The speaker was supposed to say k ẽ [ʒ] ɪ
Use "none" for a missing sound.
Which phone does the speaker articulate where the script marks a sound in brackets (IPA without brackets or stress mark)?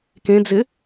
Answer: d͡z